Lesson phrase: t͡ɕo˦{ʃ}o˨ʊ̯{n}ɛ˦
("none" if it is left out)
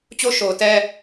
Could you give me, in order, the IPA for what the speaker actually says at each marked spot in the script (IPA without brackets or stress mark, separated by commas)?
ʃ, t